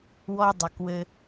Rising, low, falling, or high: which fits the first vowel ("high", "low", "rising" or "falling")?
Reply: high